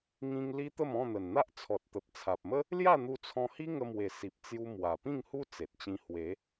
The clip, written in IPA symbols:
ŋ ĩ˧ ŋ l i˦ t̪ ə˥˧ m ɔ̃˥˧ n̪ ə˨˩ n n̪ a˦ ʔ t͡sʰ ɔ˨ t̚ t̪ ə˨ p̚ t͡sʰ a˨ p̚ m ə˦ | l j a˥˧ n̪ u˧ t͡sʰ ɔ̃˧ h i˦ ŋ ə˧ m w e˨˩ s i˨ p̚ t͡s j u˧ m w a˨˩ p ĩ˥˧ ŋ h u˦ t͡s e˨ t̚ t͡ɕ ĩ˧ h w e˨˦

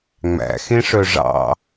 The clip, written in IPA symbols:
ŋ͡m æ̰ x ẽ ʂ œ ʐ ɑ̰

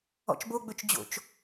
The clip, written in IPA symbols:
ɔ̰ t͡ʃ b o ɡ͡b ɵ t͡ʃ d͡ʑ o̰ t͡ʃ

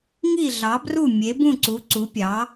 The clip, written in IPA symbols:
ŋ i˥˩ ɮ ɑ˩˥ b r u˥˩ mʲ e˩˥ b ũ˥˩ ǀ u˩˥ ǀ u˩˥ pʲ ɑ˩˥

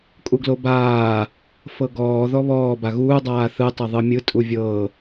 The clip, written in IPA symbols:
kʼ u ɡ l o b aː | f ɤ ɡ ɔː ð ɔ β ɔː b a ɣ uː dˤ aː θ ɯ tˤ ɤ ðˤ ɯ mʲ ɯ tʼ u vʲ ɤː

